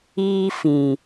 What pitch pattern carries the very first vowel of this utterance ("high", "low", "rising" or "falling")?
high